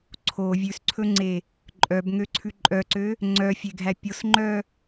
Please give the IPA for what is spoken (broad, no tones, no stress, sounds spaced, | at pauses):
ǀʰ o vʲ ʉ s ǀʰ ɵ ŋ͡ǀ e | ǃʼ œ b ŋ ø ǀʰ ʉ ǃʼ œ ǀ ø | ŋ͡ǀ œ fʲ e ɡʱ æ pʲ o s ŋ͡ǃ œ